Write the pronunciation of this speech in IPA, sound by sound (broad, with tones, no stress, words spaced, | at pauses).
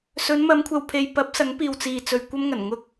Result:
sɵ˨˧nmɐ˨˧mkʷʰɐ˨wpʰe˨j pɐ˨˥p̚ sɐ˨˥ŋpiː˨wt͡siː˨t͡sɵ˨ɥ kʷɐ˥mŋɐ˨˩n ŋʊ˧k̚